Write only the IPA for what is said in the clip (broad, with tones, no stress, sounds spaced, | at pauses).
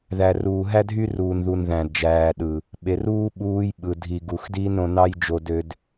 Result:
ð æ˨ r uː˨ ɦ æ˦ dʱ y˦ r uː˨ n ð u˨ n ð æ̃˨ d d͡ʒ æː˨ ɗ ɯ˨ | ɓ e˨ r uː˦ ɓ uː˧ j ɓ ɯ˨ dʱ i˨ ɡ u˨ x d iː˦ n ɾ õ˧ n ɑ˦ j d͡ʒ o˧ d ø˧ d